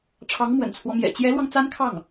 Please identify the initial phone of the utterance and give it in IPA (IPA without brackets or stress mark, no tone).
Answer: ʈ͡ʂʰ